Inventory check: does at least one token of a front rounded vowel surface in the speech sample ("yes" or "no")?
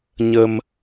no